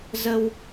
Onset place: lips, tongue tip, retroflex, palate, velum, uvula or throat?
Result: tongue tip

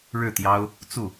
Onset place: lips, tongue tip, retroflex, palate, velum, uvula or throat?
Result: retroflex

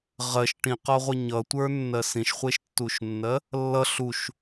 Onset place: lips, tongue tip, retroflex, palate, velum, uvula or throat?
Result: uvula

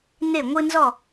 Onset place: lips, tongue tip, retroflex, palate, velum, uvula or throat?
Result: tongue tip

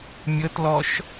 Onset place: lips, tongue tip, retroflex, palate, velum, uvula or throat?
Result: lips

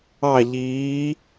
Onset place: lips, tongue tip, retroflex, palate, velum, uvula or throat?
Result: palate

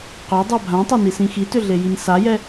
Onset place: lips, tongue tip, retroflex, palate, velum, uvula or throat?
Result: uvula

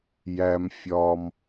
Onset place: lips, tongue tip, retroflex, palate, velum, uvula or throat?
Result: palate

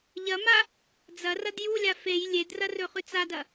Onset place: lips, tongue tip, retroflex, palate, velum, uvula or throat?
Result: palate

